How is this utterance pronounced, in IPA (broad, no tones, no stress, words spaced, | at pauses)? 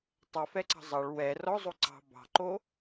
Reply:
tˤɛfɛǀɑ̤ zˤɑɭ wɛ rɔzˤo ǀɑ̤ bɑ̤ǃo